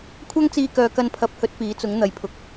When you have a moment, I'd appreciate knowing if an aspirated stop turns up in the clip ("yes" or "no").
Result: yes